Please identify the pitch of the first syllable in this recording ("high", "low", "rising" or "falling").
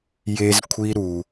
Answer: high